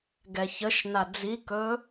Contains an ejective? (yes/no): no